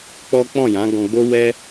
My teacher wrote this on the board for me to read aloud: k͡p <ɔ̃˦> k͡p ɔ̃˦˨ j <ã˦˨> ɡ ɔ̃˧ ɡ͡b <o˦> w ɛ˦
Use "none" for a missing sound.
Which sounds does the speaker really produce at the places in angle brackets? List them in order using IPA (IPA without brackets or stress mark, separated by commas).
ɔ˦, ã˨˦, o˦